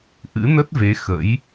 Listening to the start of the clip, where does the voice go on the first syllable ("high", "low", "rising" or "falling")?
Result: rising